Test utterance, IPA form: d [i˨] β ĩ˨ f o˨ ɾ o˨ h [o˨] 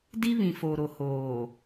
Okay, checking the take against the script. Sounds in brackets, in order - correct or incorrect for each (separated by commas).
incorrect, incorrect